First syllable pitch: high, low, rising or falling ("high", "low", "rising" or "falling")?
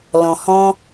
low